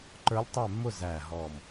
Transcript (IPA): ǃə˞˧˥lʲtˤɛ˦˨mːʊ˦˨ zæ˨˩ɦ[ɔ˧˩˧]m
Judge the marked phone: incorrect: ɔ˨˩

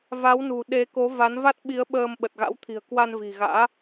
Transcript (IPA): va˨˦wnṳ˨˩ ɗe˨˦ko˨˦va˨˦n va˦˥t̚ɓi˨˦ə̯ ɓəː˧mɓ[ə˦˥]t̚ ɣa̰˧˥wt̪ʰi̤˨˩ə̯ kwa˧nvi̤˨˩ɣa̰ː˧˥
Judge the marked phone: incorrect: ə˨˩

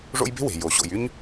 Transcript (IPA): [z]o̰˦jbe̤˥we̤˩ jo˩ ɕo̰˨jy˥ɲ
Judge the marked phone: incorrect: ʐ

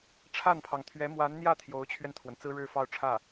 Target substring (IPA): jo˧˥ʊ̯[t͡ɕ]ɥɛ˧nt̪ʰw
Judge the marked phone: incorrect: t͡ɕʰ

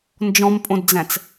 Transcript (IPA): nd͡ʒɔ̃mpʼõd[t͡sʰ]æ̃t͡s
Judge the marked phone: incorrect: d͡z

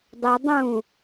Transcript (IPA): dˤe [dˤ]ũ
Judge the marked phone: correct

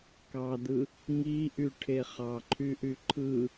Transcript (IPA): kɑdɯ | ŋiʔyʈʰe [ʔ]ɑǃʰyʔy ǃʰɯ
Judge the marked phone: incorrect: χ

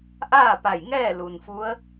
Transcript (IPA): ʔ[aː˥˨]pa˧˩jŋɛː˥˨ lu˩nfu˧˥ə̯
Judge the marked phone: correct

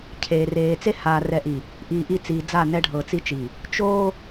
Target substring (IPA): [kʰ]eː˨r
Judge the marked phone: incorrect: cʰ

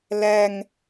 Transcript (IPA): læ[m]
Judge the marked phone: incorrect: ŋ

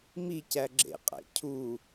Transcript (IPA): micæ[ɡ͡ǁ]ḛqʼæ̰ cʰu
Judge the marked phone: correct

